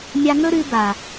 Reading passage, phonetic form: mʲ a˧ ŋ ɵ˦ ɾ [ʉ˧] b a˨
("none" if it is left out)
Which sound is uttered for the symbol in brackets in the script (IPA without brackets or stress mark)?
ʉ˧